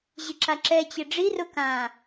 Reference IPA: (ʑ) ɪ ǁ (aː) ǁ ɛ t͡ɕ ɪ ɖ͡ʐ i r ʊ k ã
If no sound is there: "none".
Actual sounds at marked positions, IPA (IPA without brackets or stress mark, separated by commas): ʑ, a